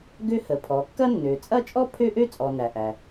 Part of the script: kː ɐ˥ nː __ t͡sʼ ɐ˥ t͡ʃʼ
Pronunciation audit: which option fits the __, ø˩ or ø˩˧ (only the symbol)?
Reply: ø˩˧